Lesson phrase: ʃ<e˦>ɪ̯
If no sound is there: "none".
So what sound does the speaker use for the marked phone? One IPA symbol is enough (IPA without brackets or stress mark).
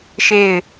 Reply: e˦˨